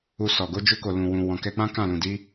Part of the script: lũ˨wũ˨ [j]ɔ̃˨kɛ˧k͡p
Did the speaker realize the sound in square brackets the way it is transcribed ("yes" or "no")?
no